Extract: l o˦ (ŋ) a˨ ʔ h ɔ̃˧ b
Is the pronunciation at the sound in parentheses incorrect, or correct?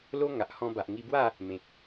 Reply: correct